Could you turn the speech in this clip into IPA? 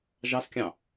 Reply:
ʒ ɑ s kʲ ɑ̃

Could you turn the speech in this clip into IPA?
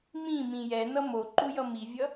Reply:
m ĩ m ĩ j ɛ n ʌ m o ǃ u j ʌ m i vʲ ʌ

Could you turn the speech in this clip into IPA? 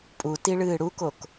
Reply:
pʼ u t i ɭ ɨː ɽ u k o k

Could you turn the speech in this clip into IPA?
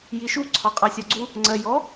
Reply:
j i ʃ u ǀʰ ɒ qʼ ɑ sʲ ɒ ɡ͡ǀ u | ŋ͡ǀ ɜ j ɔ

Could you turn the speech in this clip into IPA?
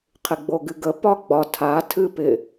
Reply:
qʰ ɪ ɡ͡b o ɡ ɨ ɡ ə p ɒ ɡ͡b ɒ tʰ a tʰ ɨ p ɪ

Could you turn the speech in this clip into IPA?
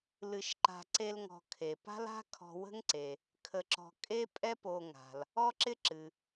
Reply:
l ɨ˧ ʃ ǃ a̤˧ ǀ e˥ l ŋ ɔ̤˧ kʰ e˩ p a̤˥ l a̤˥ kʰ ɔ̤˧ w ə̤˥ ŋ ǀ e˩ | kʰ ə˧ ǁ ɔ̤˧ kʼ e˥ pʼ ɛ˥ p o˧ ŋ a̤˩ l | ɔ˥ ǁ ɪ˥ ǁ ɨ˩

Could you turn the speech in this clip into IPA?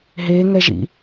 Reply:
ɦ e ŋ ɛ ʒ ḭ

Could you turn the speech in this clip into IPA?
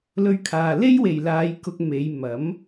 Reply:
l ɵ˧ ɥ kʰ aː˨ l e˥ j w e˨˩ j l aː˨˧ j k ʊ˧ k̚ m e˨˧ j m ɐ˨˥ m

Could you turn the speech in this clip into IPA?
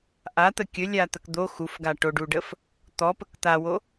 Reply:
ʔ a t̪ ə kʲ ɵ lʲ a t̪ ə k d̪ o x u f ɡ a ʈ o ɖ u ɖ ə f | t̪ ɔ p ə k t̪ a w o

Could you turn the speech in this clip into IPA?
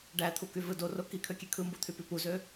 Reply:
ɖ æ t̪ʰ u k y v ɯ d o r o k i kʰ ø kʲ e kʰ ɯ m b u t̪ʰ y p y p u z ø

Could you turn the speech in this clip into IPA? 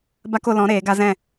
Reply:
b a˦ k o˧ l ɔ̃˨˦ ɾ eː˨˦ ɡ a˦ z ɛ̃˦˨

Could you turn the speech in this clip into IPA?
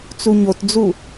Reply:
t͡s u ɲ o t d͡z u

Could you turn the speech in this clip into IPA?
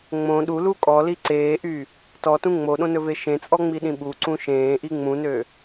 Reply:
ŋ͡m õ ɗ u l u kʼ ɔ l i ǀ eː ʔ y | t ɔ t ũ ŋ͡m o ɗ õ n ɵ v e ʃ ẽ t͡sʼ ɔ ŋ͡m i ɗ ĩ ɓ u ǀ ũ ʃ ẽː ʔ i ŋ͡m ũ n ø

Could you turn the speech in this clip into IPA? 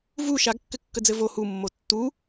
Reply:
v u ʃ a ɡ kː ɘ kː ə d͡z ɘ v o h u mː o tː u

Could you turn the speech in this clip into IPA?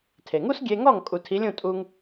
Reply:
tʰ e˩ ŋ u˥ s ɡʲ e˧ ŋ ɔ˥˩ ŋ kʼ u˩ tʰ i˩˥ lʲ ũ˥˩ tʼ u˧ ŋ

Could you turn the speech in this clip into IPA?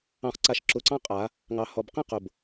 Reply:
ɑ̃˨ χ ǀ a˨ ʃ ǁ ʊ˨ ǀ ɑ̃˦ qʼ a˨˦ | ŋ ɑ˨ h ɔ˨ b q ĩ˦ q ʊ˨ b

